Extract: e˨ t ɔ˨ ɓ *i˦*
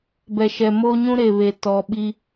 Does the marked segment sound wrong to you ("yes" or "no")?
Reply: no